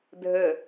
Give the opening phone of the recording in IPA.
dʱ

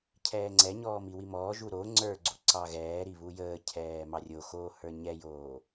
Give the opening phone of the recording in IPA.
cʰ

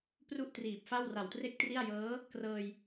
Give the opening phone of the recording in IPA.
p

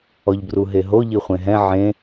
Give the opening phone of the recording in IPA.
ɔ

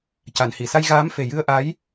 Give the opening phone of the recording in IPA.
c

